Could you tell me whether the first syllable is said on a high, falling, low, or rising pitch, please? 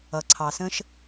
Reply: low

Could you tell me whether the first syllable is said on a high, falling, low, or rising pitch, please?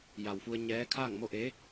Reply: low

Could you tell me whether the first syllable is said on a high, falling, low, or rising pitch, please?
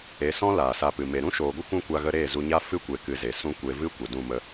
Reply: rising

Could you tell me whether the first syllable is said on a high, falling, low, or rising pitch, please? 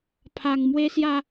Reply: low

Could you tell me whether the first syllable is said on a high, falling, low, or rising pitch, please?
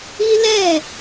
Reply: high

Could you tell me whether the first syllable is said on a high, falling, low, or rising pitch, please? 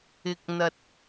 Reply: low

